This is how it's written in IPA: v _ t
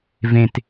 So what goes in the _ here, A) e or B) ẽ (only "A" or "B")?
B